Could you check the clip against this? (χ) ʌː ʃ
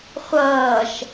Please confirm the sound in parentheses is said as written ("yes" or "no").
no